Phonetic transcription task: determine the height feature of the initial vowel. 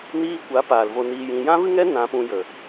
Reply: high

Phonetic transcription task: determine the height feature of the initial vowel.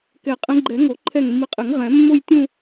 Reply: mid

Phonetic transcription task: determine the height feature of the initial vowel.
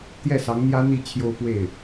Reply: mid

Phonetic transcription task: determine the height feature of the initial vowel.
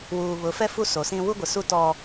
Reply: high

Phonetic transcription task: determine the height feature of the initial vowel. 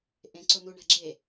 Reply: mid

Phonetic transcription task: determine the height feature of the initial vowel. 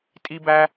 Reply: high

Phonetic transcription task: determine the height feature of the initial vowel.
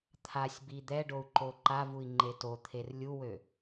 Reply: low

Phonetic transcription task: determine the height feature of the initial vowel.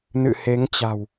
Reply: high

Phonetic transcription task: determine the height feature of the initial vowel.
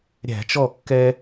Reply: low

